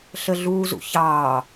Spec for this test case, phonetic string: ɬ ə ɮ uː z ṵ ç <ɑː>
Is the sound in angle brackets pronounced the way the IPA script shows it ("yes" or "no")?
yes